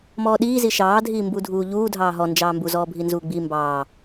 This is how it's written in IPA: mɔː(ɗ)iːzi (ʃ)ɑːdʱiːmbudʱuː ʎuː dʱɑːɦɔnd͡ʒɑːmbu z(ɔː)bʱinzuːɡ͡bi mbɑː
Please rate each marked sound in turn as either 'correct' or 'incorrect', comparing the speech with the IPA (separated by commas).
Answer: correct, correct, correct